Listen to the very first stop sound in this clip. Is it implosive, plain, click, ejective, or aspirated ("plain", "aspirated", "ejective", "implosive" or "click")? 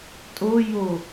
ejective